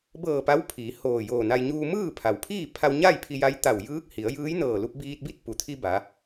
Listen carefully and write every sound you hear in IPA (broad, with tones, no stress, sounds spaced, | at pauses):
b ɤː˧˩ p a˧˥ w pʰ iː˩˧ h oː˧˩ j oː˧˩ n a˧ j ɲ uː˧ m ɯː˥˨ pʰ a˩ w pʰ iː˥˨ pʰ a˧ w ɲ a˥˨ j pʰ i˧ j a˧˥ j t̪ a˧˩ w j ɯː˧˥ k̚ h i˩˧ ə̯ j ɯː˧˥ j n ɤː˧˩ l u˧ p̚ b iː˧ t̚ b i˥˨ t̚ p u˩˧ t̪ʰ i˧ b a˩˧